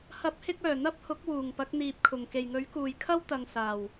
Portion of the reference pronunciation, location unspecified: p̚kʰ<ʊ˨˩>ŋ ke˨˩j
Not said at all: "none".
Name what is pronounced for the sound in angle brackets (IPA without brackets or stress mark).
ʊ˨˩